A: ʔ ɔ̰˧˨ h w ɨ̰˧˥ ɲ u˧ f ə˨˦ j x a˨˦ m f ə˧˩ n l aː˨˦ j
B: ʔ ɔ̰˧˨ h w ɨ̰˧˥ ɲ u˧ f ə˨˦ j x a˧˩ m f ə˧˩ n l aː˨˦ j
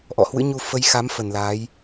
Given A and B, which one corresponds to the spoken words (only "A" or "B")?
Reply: A